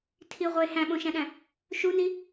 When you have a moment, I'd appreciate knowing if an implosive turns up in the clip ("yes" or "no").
yes